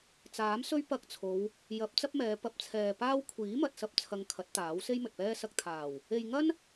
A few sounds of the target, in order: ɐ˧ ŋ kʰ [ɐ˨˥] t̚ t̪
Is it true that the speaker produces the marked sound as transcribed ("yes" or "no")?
yes